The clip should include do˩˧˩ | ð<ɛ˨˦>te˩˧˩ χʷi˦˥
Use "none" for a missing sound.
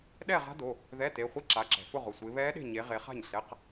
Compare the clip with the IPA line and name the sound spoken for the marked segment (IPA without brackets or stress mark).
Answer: ɛ˧˥˧